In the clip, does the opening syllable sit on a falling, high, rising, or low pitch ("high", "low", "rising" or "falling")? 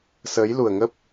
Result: rising